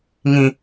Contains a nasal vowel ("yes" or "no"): yes